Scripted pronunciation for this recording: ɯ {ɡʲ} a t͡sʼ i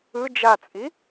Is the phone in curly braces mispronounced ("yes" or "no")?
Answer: yes